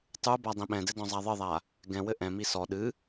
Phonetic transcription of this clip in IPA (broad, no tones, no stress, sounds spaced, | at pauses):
tˤ u b a dˤ ĩ ɓ ɛ̃ d ɘ d ɔ̃ zˤ a ðˤ ɘ ðˤ a | ɡ ɛ̃ w ɘ ʔ ɛ̃ m i s ɔ ɗ ɨ